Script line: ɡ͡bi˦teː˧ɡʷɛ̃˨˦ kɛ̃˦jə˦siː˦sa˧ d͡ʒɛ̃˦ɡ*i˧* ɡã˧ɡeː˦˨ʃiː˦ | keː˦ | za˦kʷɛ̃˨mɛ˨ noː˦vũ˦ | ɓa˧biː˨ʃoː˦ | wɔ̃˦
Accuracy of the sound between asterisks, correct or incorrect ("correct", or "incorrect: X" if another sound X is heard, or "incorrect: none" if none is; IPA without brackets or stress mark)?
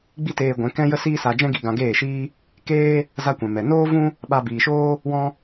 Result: correct